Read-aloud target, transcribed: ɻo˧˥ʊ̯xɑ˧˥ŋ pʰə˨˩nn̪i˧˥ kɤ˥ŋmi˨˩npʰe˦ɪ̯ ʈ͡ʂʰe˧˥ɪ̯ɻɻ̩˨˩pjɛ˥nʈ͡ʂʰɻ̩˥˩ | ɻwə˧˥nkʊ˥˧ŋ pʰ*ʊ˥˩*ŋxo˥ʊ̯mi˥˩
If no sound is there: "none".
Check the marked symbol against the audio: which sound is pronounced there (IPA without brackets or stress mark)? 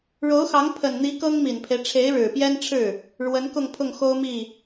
ʊ˥˩